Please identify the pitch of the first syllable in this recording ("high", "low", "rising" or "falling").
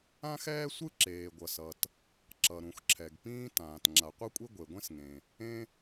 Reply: high